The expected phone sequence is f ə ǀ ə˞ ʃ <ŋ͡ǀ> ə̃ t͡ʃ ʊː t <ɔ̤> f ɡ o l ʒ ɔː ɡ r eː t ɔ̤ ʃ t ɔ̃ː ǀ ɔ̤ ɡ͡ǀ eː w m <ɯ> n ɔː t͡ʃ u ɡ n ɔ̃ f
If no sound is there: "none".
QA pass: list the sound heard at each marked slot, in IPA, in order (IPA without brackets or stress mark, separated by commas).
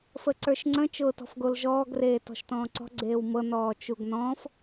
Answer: ŋ͡ǀ, ɔ̤, ɤ